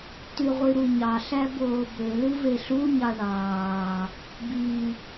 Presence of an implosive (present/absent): absent